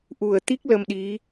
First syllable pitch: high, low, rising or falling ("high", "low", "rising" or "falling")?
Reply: low